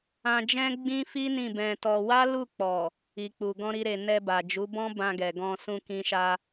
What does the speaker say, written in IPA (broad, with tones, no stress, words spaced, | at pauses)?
ã˧d͡ʒɛ̃˦ ɡ͡bĩ˦fi˦ nĩ˦˨bɛ̃˧tɔ˧ wa˦ lu˦˨k͡pɔ˨ | i˨k͡pu˨ ɡɔ̃˧ɾi˧ɾe˨ nɛ˧ba˨d͡ʒu˨˦bɔ̃˦ bã˧ɡɛ˨ɡɔ̃˧ sũ˧kĩ˧ʃa˧